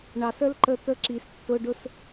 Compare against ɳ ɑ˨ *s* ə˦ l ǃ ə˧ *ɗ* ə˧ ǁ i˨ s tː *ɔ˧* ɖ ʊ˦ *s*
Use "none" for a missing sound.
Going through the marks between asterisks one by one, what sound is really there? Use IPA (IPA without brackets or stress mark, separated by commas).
s, t̪, ʊ˧, s